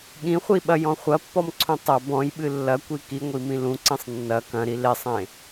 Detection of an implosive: present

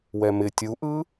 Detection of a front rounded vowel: absent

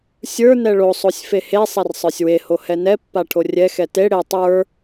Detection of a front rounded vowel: absent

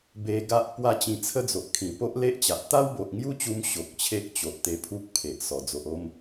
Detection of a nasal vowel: present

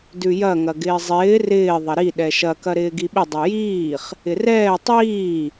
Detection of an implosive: present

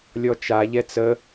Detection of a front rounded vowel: absent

